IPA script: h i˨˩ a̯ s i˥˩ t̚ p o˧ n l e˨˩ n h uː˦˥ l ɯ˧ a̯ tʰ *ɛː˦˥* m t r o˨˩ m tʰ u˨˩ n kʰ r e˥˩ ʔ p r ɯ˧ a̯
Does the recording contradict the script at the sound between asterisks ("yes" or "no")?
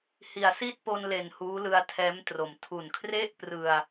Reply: no